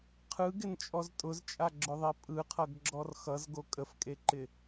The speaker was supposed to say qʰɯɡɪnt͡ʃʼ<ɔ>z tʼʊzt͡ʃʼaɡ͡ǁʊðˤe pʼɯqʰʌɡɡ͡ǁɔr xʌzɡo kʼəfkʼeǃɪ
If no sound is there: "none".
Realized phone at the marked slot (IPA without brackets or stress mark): ɔ